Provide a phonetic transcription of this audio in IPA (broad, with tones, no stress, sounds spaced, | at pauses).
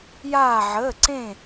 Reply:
j aː˥˧ ʕ əː˧˥˧ ǀ ẽ˥˧